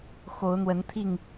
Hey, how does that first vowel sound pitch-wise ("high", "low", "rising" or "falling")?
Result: rising